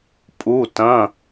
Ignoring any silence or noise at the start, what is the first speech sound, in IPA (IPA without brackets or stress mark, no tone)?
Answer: pʼ